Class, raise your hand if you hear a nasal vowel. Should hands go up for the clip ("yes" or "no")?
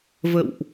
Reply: no